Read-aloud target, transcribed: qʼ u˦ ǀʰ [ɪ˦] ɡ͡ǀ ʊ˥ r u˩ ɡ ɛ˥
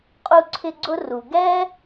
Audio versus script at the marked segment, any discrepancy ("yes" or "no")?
no